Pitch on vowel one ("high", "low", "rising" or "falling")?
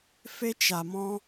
high